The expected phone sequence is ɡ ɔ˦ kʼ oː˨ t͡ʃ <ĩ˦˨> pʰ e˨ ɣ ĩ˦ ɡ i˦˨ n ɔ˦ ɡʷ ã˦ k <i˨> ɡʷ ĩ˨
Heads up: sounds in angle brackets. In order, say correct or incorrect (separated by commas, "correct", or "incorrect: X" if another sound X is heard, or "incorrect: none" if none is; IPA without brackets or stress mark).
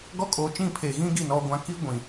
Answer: correct, incorrect: i˦